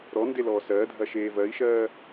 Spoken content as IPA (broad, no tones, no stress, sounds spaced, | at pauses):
ɾ ɔ n d e l ɔː s ɜː dʱ ɐ ʃ eː v ɜ i̯ ʃ ɜː